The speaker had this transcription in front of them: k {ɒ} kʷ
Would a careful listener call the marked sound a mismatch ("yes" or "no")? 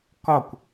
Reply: no